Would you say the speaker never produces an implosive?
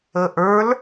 yes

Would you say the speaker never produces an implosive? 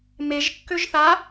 yes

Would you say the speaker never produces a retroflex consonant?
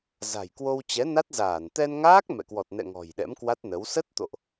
yes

